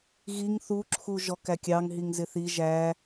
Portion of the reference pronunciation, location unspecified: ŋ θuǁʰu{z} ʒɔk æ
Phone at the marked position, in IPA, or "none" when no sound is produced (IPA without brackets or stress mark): none